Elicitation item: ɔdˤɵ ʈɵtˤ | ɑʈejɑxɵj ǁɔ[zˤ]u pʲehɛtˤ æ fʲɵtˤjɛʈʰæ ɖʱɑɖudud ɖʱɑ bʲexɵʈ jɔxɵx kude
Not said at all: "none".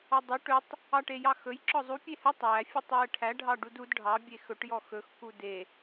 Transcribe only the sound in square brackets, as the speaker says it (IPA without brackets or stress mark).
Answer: zˤ